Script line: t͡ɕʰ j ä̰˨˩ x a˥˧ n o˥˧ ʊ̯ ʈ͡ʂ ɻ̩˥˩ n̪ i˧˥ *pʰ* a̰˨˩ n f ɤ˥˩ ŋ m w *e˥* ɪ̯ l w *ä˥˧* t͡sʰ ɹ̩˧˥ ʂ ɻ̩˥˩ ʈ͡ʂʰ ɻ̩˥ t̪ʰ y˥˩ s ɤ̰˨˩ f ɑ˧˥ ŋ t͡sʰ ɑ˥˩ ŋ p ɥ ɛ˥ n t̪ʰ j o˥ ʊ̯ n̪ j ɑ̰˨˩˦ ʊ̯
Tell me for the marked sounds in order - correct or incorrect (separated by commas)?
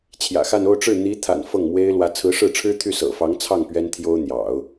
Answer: incorrect, correct, incorrect